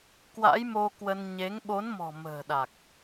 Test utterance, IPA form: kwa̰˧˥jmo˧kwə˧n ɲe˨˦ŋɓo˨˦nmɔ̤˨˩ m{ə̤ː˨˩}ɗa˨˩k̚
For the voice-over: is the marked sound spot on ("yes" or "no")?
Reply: yes